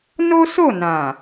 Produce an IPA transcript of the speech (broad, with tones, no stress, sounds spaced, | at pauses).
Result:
n o˦ s o˦˨ n ã˨